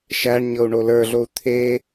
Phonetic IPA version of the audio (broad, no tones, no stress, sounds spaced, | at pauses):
ʃ æ ɳ ɲ ɤ u̯ ɳ o l ə˞ ɮ o u̯ t̪ʰ e